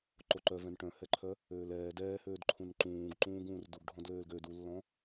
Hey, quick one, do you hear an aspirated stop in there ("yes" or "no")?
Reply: yes